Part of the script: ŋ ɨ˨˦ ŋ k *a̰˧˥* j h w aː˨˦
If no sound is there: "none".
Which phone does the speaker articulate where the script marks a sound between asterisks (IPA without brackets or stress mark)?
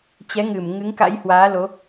a̰˧˥